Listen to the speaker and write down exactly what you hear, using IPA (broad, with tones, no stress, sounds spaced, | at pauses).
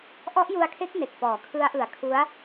ʔ ɔ˦˥ ʔ j u˧ a̯ kʰ e˦˥ k̚ n e˨˩ k̚ p ɔː˩˦ kʰ ɯ˦˥ a̯ ʔ ɯ˨˩ a̯ kʰ u˦˥ a̯